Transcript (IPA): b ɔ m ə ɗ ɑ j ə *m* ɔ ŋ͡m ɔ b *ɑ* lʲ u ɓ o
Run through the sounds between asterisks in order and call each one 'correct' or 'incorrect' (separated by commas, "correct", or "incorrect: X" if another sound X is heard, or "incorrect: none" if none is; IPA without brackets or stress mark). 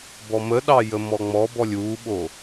correct, incorrect: ɔ